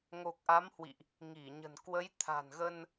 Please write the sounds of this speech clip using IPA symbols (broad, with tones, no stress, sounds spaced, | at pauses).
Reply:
ŋ o˨˩ k̚ ʔ a˨˦ m h w ḭ˧˨ ʔ | ŋ i˧˩ ɲ ə̤˨˩ n k w ə˨˦ j t̪ʰ a̤˨˩ n ɣ ə˧ n